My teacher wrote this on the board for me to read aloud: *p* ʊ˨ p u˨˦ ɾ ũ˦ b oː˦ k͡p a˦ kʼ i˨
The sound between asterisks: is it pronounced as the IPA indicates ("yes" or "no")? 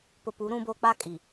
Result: yes